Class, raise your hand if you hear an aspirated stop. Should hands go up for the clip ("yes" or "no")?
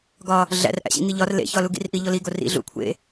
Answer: yes